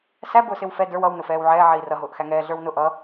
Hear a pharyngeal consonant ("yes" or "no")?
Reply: yes